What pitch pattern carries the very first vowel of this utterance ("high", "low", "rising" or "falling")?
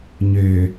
low